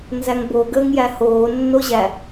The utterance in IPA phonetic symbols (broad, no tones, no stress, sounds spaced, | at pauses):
n z æ ŋ b o ɡ əː ŋ j æ h oː nː o ʑ æ